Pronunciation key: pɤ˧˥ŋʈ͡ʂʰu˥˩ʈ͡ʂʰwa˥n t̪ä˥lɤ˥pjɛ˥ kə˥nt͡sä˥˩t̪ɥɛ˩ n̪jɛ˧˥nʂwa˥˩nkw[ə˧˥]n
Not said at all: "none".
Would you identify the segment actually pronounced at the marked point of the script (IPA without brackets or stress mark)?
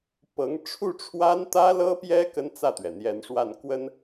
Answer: ə˥